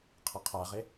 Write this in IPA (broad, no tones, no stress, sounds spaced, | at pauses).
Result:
qʰ ʌ qʰ a ʁ e